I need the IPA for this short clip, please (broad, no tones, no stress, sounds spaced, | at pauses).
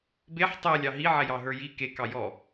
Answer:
b e ħ tˤ ɛ lʲ ɑ ɦ i ʕ ɛ j ɑ ɦ ə˞ j i k e k ɑ j ɔ